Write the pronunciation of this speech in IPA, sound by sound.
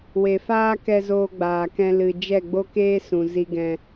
we˨faː˦kɛ˧zoː˧ ɡ͡baː˨kɛ̃˧ lɨ˨ d͡ʒɛ˦˨ɡ͡bo˦keː˦sũ˨ zi˧ɡɛ̃˧

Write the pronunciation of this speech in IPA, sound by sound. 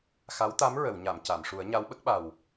xa˧˥wt̪a˧˥m ɹə˨˩˨wɲa˨˩˨m ca˨˩˨mʂu˨˩˦ə̯ ɲa˧˥wɓə˦˥k̚ɓa˨˩w

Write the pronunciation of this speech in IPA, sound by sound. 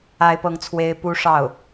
a˥ɪ̯pɤ˥˩ŋt͡sʰwe˥ɪ̯ pu˥ʂɑ˥˩ʊ̯

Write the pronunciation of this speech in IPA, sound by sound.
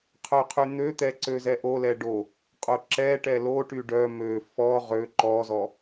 qʰœqʰyn̪øt̪ɛ ǀøzɛʔolɛ ɖo | qʼoǁɛʈɛ loʈy ɖœ mø fɔ ʁø ǃɔzɔ

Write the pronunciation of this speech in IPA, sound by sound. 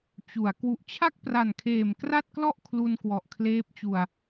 t͡ɕu˩˦a̯ kwu˨˩ʔt͡ɕʰa˥˩k̚pra˨˩nkʰeː˨˩m kra˥˩t̚klɔ˥˩ʔ kʰlu˧nkwɔ˨˩ʔkʰleː˦˥p̚t͡ɕu˨˩a̯

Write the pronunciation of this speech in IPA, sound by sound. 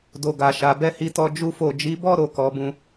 do˨ɡa˨ʃa˨ bɛ˧hi˧tɔ˧ d͡ʒu˦fo˦˨ d͡ʒi˨˦bɔ˦ ɾo˧kɔ˧bũ˧

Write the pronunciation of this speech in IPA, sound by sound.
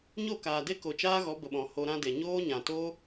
ɲo˦˨kaː˨de˦ ko˨t͡ʃaː˦ɣɔ˨˦ bə˨ɓɔ̃˨ ho˧ɾã˦de˨ ɲoː˦ɲã˨toː˦

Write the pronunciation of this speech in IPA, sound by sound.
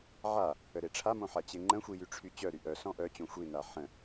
ʕa | əɾeʈ͡ʂʰamõ ħat͡ɕeŋ͡ǃə̃xʷi jyʈ͡ʂʰyt͡ɕœɾy ʔœsɔ̃ ʔœt͡ɕõ xʷina ħə̃

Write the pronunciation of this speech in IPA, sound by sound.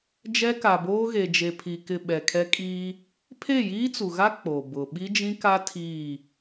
d͡ʒɛ˦ka˨boː˦ ɣe˨d͡ʒe˨pʰi˨ kɪ˨ ɓɛ˨kʰɛ˦kʼiː˦ | pʰe˦˨jiː˦t͡su˨ɣa˦ k͡po˨bʊ˨ ɓi˦d͡ʒĩ˦ka˦ tʰiː˦˨

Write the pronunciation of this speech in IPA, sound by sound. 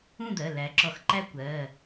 ũ˥˨d̪ɜ˩˧˩ læ˩˥ ǁɔ˧˩˧xǃæ˥ kʷɜ˩˧˩

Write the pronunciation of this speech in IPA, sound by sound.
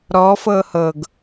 ɾɔ fɤhɤɡ

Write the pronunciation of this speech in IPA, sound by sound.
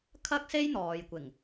kʰɐ˥k̚se˥j n̪ɔː˨jkʷɪ˨˩ŋ

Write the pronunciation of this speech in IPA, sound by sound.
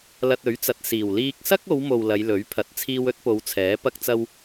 lɐ˧t̚ɵ˨˥ɥt͡sɐ˨t̚siː˨˩w liː˧k̚ sɐ˥k̚o˨˧wmo˨w lɐ˨˧jlɵ˨˥ɥpʰɐ˨˥t̚ t͡sʰiː˧wɵ˨˥t̚po˨˧w t͡sʰɛː˨˥pɐ˥k̚t͡sɐ˥w

